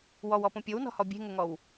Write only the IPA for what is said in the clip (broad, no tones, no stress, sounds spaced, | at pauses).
w ɔ w ɔ p õ pʲ o w n ɔ̤ h ɔ bʲ e̤ ŋ ʊ ŋ ɔ w